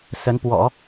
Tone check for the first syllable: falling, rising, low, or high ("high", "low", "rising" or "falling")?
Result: rising